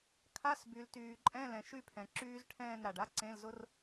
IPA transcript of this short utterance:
kʰ a˧˥˧ s b y˩ l t yː˩ ǃʼ ɛ̃˧˥˧ l ɛ̃˩ ʃ y˥˨ pʰ ɛ̃˩ ǁ yː˦˥ z ʈʰ ɛ̃ː˥˨ n ɾ a˩ ɖ a˦˥ ǀ ẽ˧˥˧ l z ʊ˦˥ r

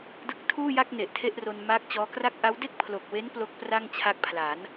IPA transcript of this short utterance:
d ɯ˦˥ k̚ tʰ uː˥˩ j a˥˩ k̚ n e˨˩ ʔ tʰ e˥˩ ʔ r o˧ n m aː˦˥ k̚ t͡ɕ ɔː˦˥ k r a˥˩ k̚ ʔ a˦˥ w d e˥˩ k̚ pʰ l o˨˩ k̚ w e˦˥ n p l o˦˥ k̚ p r a˥˩ ŋ t͡ɕʰ a˦˥ k̚ pʰ l a˩˦ n

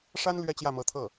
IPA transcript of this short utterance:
ʂ a˥ n l ɥ ɛ˥ t͡ɕ j ä˥˩ m ɤ˧˥ t̪ʰ ɤ˥˩

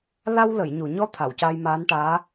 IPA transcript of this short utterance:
l a˧ w l ə˨˩˨ j ɲ u˨˩˨ ɲ ɔ˧˥ t̪ʰ a˨˩˨ w c a˧ j m aː˧˥ n ʈ aː˧˥

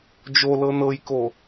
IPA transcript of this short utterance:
d͡ʒ o l ɤ n ɤ j k o

